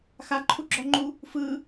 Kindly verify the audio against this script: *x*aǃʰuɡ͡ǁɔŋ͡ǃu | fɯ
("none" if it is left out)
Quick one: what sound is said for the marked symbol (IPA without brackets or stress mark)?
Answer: x